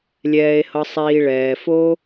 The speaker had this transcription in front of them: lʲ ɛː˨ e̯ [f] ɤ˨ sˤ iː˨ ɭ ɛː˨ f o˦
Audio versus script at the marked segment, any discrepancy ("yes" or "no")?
yes